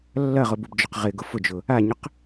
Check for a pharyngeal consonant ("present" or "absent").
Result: absent